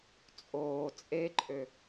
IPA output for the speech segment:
t͡sʼoː t͡sʼeǃʼø

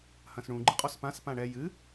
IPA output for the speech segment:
hɐ̃sɳũ ɡ͡ǃɨqʼɔspãs pãɳɛ jɨ

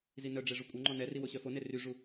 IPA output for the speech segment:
zinœɖ͡ʐe ʐukʷʼœŋ͡ǃɔ nɛri woɕœfone ryʐu

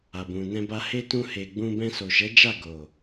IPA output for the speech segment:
a˨bũ˨nɛ̃˧ ba˧he˦tũ˧ he˨ ɡ͡bũ˧ bɛ̃˧so˨ʃɛ˨˦d͡ʒa˦˨ ɡo˨

